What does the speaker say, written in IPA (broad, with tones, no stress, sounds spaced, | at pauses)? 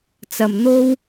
t͡s ɐ˨ m n̪ o˥ w